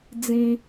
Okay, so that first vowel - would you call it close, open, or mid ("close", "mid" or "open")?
close